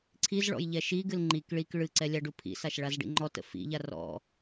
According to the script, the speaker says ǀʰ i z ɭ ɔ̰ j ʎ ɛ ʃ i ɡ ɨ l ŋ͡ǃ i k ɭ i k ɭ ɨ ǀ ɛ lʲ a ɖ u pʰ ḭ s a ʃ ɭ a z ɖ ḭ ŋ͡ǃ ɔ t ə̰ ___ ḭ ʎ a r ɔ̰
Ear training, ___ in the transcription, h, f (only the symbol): f